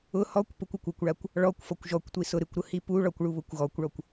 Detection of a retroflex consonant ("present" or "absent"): present